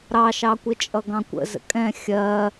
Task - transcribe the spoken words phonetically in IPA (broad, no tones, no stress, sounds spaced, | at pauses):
ɾ ɑ ʃ ɑ kʷ ɪ t͡ʃʼ ʌ ɡ ɑ̃ kʷ ə̰ z ə̰ kʼ ɛ̃ xʲ ɜ